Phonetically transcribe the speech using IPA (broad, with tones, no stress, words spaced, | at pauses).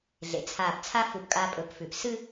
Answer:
ɮḛ˩˥t͡sʰaː˧˩pt͡sʰa˥ fu˧˩pkʼa˧pʼɵ˩˥p fʉ˩p sɨ˥˧